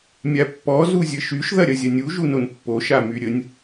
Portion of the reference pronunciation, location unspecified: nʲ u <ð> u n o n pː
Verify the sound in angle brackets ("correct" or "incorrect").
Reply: incorrect